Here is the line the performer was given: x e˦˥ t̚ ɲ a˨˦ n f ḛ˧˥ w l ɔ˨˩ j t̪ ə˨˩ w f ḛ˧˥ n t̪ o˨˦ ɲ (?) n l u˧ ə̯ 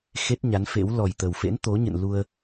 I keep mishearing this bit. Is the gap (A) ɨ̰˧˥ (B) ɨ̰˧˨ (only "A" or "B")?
B